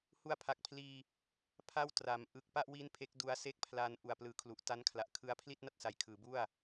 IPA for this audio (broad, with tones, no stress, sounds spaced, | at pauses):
h u˧ a̯ pʰ a˨˩ k̚ pʰ l iː˧ | pʰ a˥˩ w t r a˩˦ m ʔ ɯ˨˩ k̚ p a˥˩ ʔ w i˦˥ n pʰ e˦˥ k̚ d u˧ a̯ s e˥˩ k̚ pʰ l aː˦˥ n ʔ u˨˩ a̯ p l ɯː˩˦ kʰ l u˨˩ ʔ t a˦˥ n kʰ l a˨˩ ʔ kʰ ɯ˦˥ a̯ pʰ l i˥˩ t̚ n a˥˩ t̚ s a˨˩ j kʰ ɯː˩˦ b u˥˩ a̯